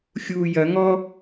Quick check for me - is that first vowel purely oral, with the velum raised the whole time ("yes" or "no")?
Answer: yes